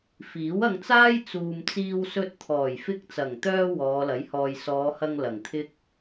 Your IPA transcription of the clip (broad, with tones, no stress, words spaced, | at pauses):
fiː˨˥wɐ˧ŋt͡saː˥j t͡suː˨mt͡siː˧wsɵ˧t̚ t̪ʰɔː˨˩jfɪ˧k̚t͡sɐ˨˩ŋt̪œː˧ wɔː˨˧lɐ˨˥jhɔː˨j sɔː˨˧hɐ˧ŋ lɐ˨˩ŋt̪ʰɪ˥k̚